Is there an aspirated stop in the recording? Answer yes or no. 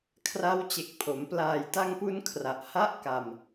yes